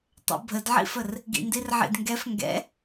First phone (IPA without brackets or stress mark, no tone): tˤ